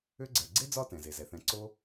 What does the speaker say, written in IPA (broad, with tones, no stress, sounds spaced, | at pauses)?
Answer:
ʏ˥ ɡ͡ǀ ɛ˨ ɡ͡ǀ e˥ d͡z ɒ˦ t ɛ̃˩ z e˩ z ɛ˩ θ ɛ̃˨ ǀ o˥